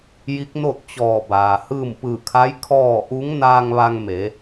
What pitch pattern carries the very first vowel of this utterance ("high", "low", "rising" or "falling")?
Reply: rising